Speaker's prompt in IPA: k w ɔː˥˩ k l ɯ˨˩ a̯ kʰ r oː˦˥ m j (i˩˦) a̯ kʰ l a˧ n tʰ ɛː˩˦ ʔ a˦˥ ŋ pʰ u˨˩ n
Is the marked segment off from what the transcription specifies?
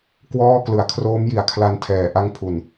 no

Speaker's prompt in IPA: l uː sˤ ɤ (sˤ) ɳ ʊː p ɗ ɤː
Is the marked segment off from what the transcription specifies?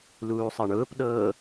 yes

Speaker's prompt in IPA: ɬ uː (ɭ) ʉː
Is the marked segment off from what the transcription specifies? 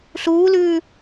yes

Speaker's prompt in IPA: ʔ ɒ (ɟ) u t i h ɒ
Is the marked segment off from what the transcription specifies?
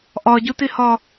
no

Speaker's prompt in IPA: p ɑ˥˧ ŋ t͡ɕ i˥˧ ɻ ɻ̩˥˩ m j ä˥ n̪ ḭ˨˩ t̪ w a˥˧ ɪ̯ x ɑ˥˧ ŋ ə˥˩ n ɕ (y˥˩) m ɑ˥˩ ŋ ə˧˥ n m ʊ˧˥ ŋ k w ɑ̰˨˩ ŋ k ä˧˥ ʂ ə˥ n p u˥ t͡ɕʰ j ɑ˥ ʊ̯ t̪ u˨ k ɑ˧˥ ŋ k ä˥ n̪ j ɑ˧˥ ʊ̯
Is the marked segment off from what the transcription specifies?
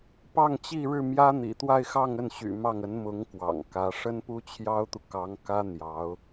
yes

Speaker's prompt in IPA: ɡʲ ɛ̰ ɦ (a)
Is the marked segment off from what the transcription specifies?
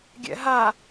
no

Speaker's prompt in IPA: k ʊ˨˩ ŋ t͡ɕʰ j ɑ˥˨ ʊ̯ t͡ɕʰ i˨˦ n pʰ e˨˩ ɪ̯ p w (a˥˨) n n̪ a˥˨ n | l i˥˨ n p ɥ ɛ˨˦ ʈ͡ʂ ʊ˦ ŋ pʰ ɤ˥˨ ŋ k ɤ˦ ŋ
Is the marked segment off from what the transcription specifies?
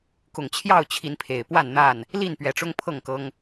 no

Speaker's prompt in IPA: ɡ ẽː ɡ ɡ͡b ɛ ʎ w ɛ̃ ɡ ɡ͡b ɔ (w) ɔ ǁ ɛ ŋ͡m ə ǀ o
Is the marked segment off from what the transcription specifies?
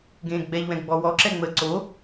no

